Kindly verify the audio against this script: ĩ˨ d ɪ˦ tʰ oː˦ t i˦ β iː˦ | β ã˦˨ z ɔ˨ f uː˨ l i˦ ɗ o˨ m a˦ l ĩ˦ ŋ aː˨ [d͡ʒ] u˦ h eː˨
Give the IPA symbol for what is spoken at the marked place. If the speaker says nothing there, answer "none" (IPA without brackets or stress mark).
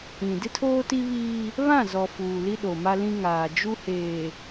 d͡ʒ